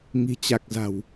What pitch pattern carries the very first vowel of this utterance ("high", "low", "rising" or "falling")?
low